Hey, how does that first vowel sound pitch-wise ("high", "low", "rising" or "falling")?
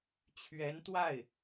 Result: rising